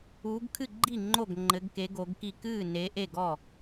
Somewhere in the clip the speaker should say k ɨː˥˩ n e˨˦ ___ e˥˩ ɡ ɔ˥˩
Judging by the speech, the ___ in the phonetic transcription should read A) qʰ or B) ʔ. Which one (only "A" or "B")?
B